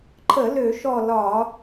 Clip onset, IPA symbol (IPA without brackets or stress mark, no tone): ǃʰ